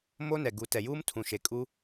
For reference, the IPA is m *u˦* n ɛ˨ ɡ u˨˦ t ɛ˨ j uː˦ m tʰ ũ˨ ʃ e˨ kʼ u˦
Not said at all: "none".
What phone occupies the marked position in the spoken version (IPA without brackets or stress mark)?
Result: o˦